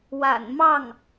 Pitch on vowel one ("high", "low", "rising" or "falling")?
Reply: low